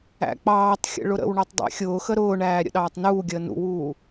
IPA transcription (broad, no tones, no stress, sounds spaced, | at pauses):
æ̰ k͡p ɑː tˤ xʲ ə̰ ɭ ʊ ɾ ə̰ w ɳ ɔ tˤ dˤ æ̰ xʲ ʊː x ə ɾ ʊː ɳ æː ɾʲ ə̰ ɗ ɑː tˤ n uː ɡʲ əː n ṵ w uː